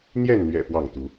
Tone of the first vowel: falling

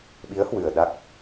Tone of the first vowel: rising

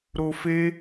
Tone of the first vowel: low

